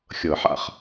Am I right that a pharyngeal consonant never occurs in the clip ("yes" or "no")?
no